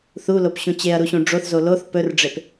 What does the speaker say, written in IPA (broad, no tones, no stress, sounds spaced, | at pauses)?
θ u l o p ɕ ũ t͡ɕ e ɐ̯ ɾ u ɕ ũ ɖ͡ʐ o θ z o l o θ p ɵ r ɖ͡ʐ e p